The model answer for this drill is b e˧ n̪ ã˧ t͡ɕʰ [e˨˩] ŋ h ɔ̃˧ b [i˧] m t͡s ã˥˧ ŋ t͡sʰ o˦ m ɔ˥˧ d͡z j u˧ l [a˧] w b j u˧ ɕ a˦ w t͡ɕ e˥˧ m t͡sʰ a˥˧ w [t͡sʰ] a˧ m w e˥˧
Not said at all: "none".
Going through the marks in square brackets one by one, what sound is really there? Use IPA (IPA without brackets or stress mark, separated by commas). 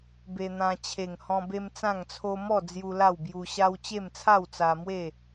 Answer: e˨˩, e˧, a˥˧, t͡s